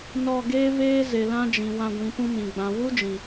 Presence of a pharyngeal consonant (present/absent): absent